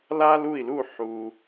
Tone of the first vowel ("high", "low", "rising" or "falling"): high